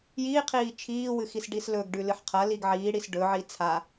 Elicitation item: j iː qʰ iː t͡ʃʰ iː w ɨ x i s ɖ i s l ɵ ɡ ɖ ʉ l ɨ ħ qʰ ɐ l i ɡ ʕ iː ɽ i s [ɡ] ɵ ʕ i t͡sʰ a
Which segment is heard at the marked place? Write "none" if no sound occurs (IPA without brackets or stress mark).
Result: ɖ